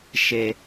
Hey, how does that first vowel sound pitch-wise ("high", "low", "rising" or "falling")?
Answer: low